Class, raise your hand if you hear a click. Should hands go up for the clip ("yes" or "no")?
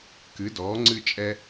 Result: yes